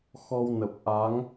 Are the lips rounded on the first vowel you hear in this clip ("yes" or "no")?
yes